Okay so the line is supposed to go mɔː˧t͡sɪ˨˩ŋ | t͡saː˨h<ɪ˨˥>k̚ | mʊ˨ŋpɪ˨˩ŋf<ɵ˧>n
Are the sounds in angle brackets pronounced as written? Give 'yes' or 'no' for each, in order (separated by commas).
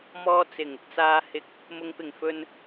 yes, no